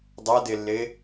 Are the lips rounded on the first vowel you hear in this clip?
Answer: no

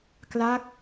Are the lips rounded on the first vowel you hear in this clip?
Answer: no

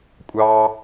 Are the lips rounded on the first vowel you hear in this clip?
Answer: no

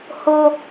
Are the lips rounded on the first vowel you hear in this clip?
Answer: yes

